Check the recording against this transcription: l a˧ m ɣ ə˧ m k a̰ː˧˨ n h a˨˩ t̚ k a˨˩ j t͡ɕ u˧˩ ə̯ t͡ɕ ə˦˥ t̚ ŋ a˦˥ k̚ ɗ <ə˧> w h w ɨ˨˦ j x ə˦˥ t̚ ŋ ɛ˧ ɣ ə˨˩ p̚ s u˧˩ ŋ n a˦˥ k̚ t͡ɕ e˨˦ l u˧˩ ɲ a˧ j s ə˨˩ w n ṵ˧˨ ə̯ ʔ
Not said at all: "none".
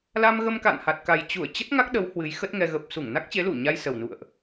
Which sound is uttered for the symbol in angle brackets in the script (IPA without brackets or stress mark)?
ə˨˦